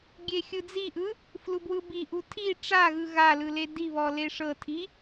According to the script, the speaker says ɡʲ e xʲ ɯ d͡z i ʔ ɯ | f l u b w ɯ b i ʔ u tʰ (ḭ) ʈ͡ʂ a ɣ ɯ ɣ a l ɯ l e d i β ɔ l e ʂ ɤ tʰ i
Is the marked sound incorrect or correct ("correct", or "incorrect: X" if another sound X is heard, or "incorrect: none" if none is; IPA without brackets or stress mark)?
incorrect: i